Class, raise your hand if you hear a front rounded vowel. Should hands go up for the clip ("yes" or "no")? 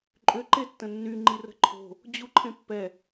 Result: yes